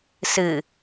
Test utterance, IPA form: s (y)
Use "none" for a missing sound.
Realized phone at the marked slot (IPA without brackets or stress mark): ɨ